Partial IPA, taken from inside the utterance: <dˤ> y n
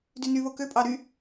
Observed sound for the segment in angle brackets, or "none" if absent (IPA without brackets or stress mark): d